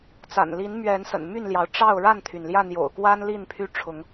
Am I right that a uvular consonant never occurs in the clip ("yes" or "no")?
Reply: yes